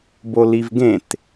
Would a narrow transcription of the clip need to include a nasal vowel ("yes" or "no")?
yes